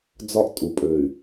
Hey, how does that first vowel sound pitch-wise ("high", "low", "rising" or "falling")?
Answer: high